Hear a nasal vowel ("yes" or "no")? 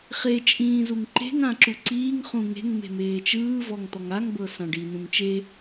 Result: yes